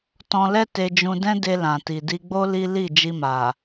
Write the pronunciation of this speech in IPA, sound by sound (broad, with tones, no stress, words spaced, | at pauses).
tɔ̃˧lɛ˦ te˧d͡ʒũ˧ dɛ̃˦de˧ lã˨ti˨di˧ɡ͡bo˦ li˦ li˦˨ d͡ʒi˧ma˨